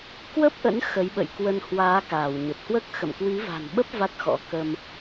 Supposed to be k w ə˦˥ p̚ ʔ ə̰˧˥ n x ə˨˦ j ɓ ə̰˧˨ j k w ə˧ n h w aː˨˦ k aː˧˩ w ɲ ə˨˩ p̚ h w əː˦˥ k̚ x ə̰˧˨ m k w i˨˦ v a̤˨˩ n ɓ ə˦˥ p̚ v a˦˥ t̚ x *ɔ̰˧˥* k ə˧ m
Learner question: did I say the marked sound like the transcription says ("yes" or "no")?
yes